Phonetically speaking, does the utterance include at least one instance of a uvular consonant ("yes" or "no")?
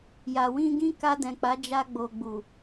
no